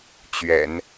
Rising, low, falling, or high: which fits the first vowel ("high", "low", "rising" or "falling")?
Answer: low